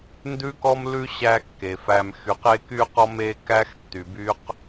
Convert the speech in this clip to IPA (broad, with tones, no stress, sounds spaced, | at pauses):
n d ʉ˦ k ɔ˦ m l ʉ˦ ɕ æ˦ kː e˨ f æ˨ m x y˨ q e˦ k y˦ q ɔ˦ m e˦ k æ˦ x tː y˨ b y˦ q